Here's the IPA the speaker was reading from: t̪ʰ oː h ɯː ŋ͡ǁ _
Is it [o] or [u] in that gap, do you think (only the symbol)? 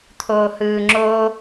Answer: o